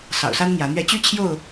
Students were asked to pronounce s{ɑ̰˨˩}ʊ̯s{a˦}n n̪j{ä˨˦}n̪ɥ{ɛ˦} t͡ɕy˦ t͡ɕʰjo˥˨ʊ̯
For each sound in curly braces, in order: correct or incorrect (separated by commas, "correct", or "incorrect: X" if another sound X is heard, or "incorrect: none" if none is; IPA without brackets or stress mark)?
correct, correct, correct, correct